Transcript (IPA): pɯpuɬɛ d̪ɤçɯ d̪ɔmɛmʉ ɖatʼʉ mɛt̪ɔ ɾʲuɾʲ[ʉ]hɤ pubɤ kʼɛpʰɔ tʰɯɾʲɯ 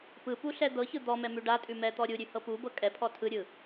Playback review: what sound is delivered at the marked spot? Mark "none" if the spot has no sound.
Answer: ʉ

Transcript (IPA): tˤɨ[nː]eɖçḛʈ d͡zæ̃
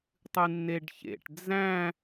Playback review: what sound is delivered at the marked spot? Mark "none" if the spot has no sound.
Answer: nː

